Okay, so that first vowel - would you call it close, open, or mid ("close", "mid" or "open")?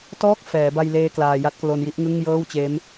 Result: mid